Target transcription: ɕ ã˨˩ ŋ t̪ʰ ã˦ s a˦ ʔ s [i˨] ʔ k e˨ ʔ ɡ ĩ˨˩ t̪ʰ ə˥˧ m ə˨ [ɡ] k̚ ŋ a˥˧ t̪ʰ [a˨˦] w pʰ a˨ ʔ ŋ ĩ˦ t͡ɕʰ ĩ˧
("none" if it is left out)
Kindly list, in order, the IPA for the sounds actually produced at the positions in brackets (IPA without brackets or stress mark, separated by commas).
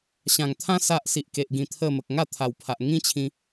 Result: i˨, none, a˨˩